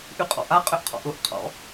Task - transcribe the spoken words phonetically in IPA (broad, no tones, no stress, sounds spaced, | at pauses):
ʔ y qʼ ɔ̰ ʔ a qʼ ʏ ʔ qʰ ɔ̰ ʔ ʊ ʔ qʰ ɔ̰